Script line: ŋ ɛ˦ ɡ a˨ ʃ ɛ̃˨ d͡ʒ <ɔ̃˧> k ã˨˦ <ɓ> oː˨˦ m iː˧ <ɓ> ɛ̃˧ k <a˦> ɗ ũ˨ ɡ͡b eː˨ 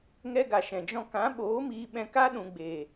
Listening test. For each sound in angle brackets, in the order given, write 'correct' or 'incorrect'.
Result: correct, correct, correct, correct

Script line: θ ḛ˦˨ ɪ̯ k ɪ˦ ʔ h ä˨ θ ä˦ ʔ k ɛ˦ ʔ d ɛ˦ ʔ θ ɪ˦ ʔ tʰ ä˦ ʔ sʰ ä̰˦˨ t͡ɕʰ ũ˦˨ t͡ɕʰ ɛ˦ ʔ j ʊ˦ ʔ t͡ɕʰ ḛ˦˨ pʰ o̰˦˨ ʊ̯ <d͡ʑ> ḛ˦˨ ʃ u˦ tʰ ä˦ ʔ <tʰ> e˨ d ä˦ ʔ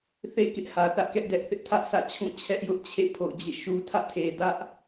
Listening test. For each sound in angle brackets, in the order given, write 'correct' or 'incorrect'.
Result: correct, correct

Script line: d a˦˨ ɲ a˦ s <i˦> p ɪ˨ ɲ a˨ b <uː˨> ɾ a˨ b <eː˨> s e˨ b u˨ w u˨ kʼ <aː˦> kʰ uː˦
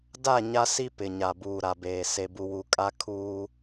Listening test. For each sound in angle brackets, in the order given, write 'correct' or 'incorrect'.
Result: correct, correct, correct, incorrect: a˦

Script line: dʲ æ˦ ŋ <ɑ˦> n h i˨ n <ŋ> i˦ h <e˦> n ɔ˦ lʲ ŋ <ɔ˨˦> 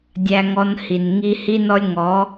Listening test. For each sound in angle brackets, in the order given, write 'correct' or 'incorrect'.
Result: incorrect: ɔ˦, correct, incorrect: i˦, correct

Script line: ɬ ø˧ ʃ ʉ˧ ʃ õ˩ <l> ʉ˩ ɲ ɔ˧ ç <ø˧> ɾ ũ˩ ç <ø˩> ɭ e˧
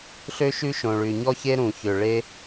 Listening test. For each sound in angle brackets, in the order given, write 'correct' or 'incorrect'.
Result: incorrect: ɭ, incorrect: e˧, correct

